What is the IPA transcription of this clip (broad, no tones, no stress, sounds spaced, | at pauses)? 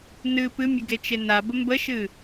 n ɨ p ɨ mʲ ə ɡ e t͡ʃ e n a b ə m b ə ʃ ɨ